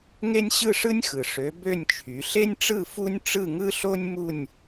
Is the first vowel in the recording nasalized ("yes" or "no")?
no